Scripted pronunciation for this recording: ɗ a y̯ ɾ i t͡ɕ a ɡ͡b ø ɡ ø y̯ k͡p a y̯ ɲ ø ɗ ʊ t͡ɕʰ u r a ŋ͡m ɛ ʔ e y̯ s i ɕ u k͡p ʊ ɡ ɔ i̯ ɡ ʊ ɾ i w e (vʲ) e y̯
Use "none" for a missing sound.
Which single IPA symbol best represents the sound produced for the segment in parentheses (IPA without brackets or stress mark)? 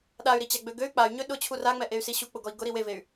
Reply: v